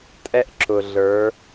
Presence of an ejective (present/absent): present